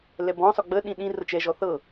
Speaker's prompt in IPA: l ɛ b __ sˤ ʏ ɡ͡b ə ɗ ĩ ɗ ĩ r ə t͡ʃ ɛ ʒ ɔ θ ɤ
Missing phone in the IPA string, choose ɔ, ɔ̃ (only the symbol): ɔ̃